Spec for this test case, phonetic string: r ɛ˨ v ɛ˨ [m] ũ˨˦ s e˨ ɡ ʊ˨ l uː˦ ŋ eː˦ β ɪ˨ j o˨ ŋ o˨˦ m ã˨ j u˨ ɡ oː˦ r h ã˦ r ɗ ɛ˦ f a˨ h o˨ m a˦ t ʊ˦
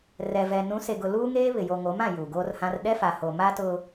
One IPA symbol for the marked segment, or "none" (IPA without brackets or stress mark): n